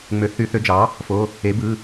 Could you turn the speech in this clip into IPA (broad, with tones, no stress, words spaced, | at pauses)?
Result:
ŋ͡mø˩˥θy˩˥θø˩˥d͡ʒɑ˩˥ | fo˩˧˩ | e˩˥ bɯ˩˧˩